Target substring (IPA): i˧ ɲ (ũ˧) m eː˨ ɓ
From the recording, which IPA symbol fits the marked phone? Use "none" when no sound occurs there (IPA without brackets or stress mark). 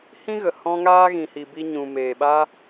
ũ˨